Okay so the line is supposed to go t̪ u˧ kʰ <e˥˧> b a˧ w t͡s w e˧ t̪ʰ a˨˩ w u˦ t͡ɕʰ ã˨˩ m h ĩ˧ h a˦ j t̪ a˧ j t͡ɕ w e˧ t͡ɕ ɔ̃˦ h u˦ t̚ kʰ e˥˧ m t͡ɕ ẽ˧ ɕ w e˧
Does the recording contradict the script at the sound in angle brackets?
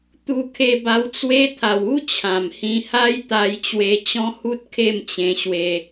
yes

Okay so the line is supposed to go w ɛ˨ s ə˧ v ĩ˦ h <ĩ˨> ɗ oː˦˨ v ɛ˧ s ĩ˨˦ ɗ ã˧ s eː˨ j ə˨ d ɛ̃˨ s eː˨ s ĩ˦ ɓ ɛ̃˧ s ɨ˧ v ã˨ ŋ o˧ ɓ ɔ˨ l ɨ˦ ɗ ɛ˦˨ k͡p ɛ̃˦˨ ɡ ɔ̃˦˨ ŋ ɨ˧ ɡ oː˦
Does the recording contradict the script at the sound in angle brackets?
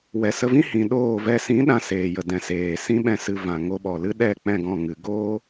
no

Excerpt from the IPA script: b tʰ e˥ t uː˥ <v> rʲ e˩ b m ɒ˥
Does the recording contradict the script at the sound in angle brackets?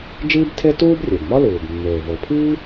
yes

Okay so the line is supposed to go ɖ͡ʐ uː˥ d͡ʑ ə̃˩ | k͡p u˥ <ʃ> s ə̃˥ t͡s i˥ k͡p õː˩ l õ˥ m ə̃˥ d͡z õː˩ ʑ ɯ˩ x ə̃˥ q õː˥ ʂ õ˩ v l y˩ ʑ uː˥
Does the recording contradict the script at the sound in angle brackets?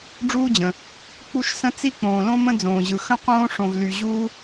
no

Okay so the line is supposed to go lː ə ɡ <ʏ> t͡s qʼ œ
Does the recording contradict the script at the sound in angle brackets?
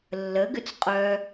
no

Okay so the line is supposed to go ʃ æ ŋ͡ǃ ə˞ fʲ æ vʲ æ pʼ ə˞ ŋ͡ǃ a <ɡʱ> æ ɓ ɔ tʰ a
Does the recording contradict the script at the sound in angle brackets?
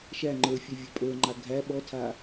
no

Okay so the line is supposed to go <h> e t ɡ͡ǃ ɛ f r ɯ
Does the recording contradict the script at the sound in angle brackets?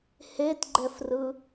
no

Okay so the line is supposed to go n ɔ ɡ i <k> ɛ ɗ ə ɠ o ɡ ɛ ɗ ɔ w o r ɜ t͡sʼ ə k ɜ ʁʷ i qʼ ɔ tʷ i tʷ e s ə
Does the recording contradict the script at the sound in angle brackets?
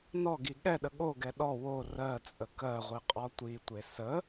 yes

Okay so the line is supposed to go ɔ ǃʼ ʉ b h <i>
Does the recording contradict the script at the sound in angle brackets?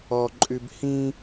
yes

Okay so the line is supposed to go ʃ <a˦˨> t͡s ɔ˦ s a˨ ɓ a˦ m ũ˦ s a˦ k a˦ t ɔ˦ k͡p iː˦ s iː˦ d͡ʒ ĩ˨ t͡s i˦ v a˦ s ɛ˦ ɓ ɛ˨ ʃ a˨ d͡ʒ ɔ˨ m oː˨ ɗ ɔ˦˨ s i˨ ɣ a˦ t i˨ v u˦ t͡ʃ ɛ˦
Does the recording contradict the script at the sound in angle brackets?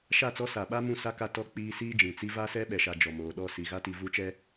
no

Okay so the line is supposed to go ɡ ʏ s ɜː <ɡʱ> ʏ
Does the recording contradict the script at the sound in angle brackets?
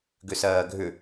no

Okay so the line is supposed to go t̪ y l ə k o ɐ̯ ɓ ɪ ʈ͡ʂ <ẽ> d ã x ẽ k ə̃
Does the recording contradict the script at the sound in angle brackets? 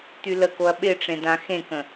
no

